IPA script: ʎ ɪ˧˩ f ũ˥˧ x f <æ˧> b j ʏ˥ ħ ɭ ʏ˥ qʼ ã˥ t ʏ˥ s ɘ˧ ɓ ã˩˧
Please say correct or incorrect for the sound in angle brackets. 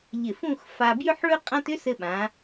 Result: incorrect